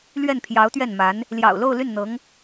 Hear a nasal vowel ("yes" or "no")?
no